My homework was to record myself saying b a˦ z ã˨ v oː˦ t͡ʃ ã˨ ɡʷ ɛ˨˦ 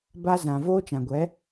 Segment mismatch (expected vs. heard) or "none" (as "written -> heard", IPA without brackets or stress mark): none